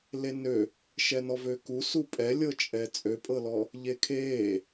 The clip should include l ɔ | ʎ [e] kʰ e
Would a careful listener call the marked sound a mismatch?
no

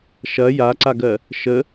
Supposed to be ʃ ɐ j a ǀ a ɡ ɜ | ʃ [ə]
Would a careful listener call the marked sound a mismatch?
no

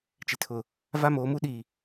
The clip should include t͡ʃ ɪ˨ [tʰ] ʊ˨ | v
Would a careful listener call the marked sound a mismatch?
no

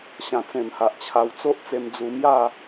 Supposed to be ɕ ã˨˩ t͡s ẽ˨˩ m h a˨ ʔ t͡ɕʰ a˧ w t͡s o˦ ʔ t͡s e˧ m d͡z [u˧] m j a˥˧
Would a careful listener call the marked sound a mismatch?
no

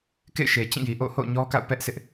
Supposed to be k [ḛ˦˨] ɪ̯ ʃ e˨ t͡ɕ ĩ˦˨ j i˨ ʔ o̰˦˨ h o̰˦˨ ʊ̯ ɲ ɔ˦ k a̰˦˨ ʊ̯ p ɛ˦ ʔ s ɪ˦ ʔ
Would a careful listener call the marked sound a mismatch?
no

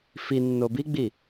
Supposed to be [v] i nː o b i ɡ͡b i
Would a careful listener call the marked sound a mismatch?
yes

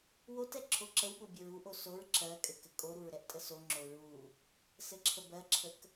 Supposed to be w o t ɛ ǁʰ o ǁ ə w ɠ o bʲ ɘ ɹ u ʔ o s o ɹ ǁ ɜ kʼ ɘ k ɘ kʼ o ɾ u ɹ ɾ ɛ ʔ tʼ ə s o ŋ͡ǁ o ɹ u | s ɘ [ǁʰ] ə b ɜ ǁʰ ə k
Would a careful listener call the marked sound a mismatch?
no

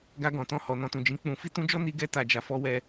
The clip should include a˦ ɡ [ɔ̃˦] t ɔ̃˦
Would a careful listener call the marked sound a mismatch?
yes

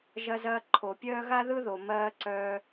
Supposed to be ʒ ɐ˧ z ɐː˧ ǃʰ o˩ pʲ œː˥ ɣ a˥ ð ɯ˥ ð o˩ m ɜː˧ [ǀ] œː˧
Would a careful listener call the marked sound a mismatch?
no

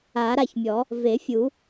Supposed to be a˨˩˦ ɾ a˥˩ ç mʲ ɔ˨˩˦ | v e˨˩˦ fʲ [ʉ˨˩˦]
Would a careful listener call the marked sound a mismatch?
yes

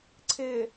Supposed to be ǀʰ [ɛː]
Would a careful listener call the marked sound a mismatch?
yes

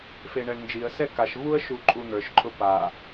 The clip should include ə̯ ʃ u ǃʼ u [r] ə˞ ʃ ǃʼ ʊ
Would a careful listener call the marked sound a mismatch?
yes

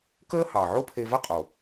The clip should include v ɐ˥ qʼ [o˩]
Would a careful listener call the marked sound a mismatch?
no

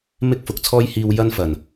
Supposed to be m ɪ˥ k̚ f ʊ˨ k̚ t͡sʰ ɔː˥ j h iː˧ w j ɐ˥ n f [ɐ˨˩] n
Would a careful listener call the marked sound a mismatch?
no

